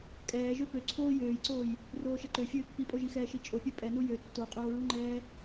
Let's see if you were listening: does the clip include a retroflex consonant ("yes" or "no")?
no